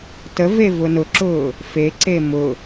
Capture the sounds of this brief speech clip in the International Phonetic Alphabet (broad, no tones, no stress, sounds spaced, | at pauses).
t ə v e v ʊ n ʊ ǁ ʊː | f e ǀ e m ʊ